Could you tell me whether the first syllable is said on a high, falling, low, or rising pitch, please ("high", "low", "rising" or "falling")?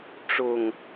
low